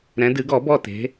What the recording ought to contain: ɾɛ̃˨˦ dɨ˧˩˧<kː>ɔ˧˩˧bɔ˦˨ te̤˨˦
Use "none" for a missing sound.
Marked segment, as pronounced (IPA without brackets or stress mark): ɡ